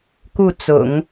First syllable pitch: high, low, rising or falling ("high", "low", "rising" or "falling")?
falling